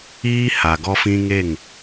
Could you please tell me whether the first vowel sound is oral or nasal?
oral